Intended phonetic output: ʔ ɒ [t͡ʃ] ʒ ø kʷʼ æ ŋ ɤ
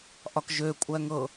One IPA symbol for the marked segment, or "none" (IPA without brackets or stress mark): k